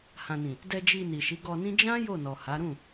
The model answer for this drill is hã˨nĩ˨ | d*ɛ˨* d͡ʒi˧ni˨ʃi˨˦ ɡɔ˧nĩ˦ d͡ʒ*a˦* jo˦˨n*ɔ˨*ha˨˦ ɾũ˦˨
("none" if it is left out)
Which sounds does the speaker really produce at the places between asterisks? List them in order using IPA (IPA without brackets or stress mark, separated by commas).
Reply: ɛ˧, ã˦, ɔ˨